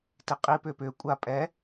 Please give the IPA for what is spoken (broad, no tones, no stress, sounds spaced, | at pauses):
t i qʼ i p ʏ p ʏ kʷʼ a pʼ ɛ